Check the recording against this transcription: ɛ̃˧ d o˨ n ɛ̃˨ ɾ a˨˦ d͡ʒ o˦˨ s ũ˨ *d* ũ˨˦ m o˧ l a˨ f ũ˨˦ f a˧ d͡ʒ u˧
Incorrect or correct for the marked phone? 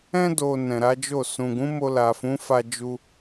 incorrect: ɡ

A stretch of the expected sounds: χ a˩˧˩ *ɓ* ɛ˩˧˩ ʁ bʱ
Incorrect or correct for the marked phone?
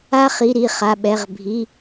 correct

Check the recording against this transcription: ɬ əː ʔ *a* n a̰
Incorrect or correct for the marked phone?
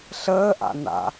incorrect: a̰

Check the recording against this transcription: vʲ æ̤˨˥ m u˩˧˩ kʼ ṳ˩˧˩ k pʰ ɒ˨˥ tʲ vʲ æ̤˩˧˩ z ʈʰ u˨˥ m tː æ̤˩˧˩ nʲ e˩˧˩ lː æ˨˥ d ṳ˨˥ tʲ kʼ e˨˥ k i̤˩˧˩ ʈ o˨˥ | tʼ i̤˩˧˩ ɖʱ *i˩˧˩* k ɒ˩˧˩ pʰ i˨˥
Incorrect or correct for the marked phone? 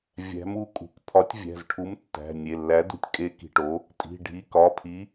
correct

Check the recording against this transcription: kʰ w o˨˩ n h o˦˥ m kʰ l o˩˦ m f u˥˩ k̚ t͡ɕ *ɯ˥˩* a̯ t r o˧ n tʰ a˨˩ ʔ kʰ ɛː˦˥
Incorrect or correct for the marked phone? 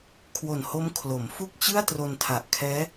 correct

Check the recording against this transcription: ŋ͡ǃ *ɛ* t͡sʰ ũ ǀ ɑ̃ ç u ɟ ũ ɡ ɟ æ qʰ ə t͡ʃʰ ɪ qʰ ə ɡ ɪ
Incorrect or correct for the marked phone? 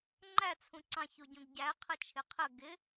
incorrect: æ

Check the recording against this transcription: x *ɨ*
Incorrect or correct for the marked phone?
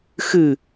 correct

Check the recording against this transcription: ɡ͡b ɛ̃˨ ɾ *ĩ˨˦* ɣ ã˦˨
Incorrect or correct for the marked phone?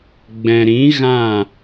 correct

